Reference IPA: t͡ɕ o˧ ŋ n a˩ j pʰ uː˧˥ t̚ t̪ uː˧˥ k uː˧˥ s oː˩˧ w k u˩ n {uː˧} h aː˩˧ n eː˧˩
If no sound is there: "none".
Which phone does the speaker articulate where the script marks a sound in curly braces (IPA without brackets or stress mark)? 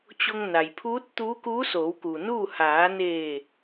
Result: uː˥˨